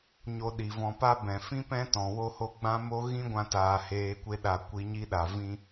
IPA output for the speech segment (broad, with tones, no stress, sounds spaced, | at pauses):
ɲ o˧ ɗ i˨ v ɔ̃˧ p a˦ b ɛ̃˨ f ĩ˦ p ɛ̃˦ t ɔ̃˨ w o˦ h o˦ ɡ͡b ã˦ m o˦ ɣ ĩ˦ ɡʷ ã˧ t aː˨ h eː˧ kʷ e˦ ɗ a˧ kʷ i˧ ɲ i˦ ɗ a˨ v ĩ˦